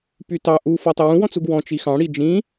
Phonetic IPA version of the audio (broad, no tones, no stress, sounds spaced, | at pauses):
p y t ɑ ʔ u f ɔ tˤ ə w ũ w ɔ̃ t͡s u ɡ w ɔ̃ t͡ʃ i x ɑ̃ ɽ i d͡ʒ ĩ